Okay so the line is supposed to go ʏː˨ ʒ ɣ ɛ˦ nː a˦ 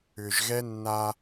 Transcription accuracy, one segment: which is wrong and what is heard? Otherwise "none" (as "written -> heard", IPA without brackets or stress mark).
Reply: none